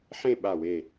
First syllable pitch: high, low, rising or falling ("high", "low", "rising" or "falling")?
falling